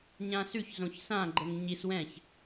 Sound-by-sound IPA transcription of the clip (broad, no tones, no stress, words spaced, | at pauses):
ɲãsʉç zõçsã ɡ͡ǃəŋɲis wɛ̃ç